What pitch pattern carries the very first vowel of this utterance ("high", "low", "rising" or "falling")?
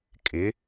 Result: rising